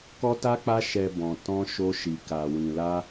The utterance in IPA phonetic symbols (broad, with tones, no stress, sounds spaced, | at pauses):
k ɔ˦ t a˦ k͡p a˦ ʃ ɛ˧ b ɔ̃˧ t ɔ̃˦ ʃ o˦ ʃ i˧ k a˧ w ĩ˧ l a˦